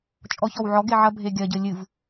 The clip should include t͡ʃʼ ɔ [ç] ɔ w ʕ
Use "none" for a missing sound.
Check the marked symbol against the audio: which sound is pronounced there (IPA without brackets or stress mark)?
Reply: ç